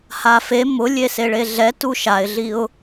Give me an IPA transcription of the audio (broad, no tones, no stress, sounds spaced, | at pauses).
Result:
h a f e m ʊ lʲ e s e ɭ e ɮ ɛ t u ʃ a ɪ̯ ɮ i ʊ̯